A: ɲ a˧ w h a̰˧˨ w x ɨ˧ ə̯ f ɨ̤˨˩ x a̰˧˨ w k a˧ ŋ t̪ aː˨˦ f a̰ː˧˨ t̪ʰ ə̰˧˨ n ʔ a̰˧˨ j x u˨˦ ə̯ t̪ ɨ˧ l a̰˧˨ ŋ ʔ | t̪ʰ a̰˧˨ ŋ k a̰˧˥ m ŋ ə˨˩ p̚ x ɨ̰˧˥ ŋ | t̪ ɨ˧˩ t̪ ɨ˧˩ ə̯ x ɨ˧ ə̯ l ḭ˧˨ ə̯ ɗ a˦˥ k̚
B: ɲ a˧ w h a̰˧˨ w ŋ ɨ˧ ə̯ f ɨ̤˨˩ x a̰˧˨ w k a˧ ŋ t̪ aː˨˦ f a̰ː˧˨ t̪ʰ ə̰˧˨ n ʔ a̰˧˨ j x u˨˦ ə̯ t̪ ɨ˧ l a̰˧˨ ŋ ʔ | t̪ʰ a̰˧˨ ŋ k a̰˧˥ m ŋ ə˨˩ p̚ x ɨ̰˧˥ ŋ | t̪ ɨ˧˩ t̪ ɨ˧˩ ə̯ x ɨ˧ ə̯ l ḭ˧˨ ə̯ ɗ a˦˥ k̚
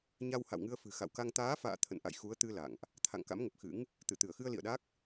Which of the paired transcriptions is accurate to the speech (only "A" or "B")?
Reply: B